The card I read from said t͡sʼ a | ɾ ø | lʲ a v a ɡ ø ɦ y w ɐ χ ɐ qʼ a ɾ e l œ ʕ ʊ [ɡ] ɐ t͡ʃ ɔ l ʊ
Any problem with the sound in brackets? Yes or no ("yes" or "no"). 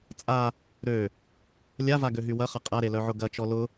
no